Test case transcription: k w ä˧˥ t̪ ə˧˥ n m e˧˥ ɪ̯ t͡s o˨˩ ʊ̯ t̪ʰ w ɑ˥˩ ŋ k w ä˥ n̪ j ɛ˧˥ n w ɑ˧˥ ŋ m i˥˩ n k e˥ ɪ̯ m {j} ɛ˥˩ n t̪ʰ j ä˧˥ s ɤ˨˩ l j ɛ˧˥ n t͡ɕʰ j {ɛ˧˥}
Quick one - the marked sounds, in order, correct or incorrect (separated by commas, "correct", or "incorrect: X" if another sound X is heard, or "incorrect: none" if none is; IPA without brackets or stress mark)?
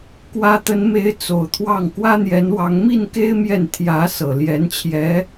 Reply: correct, correct